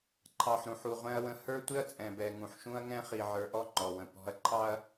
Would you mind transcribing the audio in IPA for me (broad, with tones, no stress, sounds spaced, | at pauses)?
ǃʰ ɑ˨ ħ ɾ ũ˨ ħ u˨ ʁʷ ɛ̃˦ ɐ̯ w ə̃˦ h ə˞˦ tʷ ɪ˦ ɐ̯ t͡sʼ ɛ̃˨ b ɛ˨ ŋ ũ˨ ħ ʃ ũ˦ ɐ̯ ŋ ɛ̃˦ χ i˨ ʕ ə˞˨ ʔ ɔ˦ ŋ͡ǃ ɔ˨ w ə̃˨ p ɔ̤˦ ɐ̯ ǃʰ ɑ˦ ɐ̯